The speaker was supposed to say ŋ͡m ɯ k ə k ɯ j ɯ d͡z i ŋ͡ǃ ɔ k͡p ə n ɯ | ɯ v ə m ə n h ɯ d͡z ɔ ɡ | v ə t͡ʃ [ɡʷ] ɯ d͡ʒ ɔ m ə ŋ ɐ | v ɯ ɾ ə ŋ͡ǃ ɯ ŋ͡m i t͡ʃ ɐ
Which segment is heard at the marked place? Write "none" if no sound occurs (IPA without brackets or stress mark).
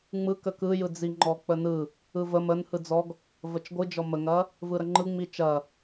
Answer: ɡʷ